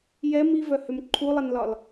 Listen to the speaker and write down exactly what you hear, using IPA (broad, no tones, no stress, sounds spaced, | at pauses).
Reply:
j ɛ m i v œ h ʏ m ǃʰ u lˠ ɛ n l ɒ l